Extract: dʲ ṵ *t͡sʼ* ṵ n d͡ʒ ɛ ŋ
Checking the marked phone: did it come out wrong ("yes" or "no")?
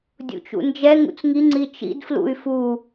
yes